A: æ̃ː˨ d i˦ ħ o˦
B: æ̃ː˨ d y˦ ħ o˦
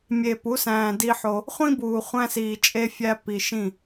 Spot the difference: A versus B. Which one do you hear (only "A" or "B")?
A